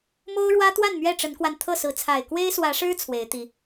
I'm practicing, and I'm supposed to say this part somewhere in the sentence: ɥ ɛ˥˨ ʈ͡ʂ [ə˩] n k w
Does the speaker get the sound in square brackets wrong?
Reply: yes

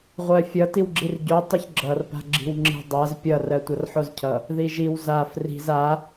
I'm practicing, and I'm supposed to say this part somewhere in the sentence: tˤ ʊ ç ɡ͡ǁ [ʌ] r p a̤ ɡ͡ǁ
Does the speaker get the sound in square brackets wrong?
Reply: no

